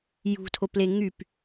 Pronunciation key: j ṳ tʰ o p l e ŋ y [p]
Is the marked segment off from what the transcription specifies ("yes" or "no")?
no